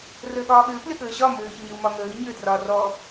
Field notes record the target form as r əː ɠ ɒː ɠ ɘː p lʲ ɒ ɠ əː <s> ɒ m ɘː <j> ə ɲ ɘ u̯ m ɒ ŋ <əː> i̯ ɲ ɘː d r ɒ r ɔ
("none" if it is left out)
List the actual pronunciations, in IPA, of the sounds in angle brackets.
ɕ, ç, əː

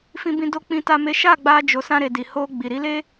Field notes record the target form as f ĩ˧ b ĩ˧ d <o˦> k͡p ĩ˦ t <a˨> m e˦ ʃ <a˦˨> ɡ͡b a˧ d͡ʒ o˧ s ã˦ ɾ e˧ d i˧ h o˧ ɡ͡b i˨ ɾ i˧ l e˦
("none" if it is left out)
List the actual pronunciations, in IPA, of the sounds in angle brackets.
o˦, a˦, a˦˨

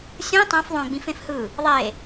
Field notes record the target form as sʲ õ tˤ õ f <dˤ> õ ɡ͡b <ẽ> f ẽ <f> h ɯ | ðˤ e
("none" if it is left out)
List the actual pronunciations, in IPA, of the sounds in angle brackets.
ðˤ, ĩ, f

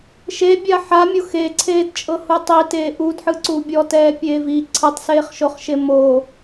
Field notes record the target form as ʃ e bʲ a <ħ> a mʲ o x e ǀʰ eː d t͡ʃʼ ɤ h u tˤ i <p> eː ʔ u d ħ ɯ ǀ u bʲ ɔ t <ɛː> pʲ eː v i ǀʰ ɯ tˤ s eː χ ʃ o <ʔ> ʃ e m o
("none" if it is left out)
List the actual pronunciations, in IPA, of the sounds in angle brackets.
ħ, t, ɛː, χ

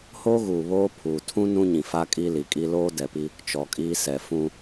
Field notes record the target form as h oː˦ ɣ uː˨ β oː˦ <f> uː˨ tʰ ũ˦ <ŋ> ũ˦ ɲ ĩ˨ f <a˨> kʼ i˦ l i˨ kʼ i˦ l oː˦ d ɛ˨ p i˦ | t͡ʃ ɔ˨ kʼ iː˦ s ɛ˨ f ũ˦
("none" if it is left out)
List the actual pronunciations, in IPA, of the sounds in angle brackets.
pʰ, n, a˦

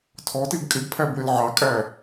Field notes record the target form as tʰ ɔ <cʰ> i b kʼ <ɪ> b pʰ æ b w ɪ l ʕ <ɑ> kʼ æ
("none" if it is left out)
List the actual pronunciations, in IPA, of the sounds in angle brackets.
t, ɪ, ɑ

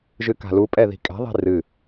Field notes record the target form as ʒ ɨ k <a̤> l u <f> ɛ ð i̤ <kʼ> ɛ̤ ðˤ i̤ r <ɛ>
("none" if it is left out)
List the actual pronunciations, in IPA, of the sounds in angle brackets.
a̤, pʼ, kʼ, ɨ

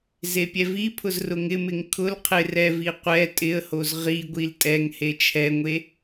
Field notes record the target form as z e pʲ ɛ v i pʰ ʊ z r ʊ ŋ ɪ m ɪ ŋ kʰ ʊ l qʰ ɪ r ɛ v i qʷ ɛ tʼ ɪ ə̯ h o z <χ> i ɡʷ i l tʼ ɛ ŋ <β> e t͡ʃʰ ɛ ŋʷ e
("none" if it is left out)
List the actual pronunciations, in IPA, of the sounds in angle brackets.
ʁ, h

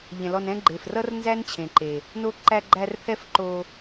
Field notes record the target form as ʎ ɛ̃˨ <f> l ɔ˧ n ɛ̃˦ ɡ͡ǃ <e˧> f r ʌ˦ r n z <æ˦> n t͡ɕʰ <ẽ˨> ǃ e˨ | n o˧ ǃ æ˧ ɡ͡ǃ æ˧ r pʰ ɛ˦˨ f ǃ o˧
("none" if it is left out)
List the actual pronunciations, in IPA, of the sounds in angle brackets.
none, e˨, æ˦, ẽ˨

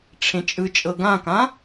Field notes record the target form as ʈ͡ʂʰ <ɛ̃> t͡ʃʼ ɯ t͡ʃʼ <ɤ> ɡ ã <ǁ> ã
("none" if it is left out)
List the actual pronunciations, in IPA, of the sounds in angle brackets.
ẽ, ɤ, k

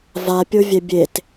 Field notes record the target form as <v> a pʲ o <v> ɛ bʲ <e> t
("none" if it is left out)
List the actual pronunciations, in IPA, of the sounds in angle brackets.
v, vʲ, e

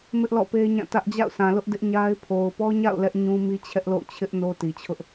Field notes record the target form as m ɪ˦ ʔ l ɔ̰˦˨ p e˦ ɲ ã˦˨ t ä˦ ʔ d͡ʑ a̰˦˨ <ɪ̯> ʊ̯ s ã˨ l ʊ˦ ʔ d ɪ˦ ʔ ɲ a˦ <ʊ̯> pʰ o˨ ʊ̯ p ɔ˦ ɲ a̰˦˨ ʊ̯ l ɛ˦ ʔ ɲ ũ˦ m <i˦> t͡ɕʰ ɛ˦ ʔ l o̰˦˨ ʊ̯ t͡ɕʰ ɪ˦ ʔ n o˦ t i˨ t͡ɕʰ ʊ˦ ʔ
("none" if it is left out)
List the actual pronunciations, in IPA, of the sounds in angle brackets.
none, ɪ̯, i˦

